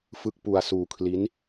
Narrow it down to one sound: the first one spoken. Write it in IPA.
f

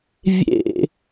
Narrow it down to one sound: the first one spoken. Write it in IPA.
vʲ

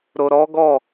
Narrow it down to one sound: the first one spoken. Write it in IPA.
ɾ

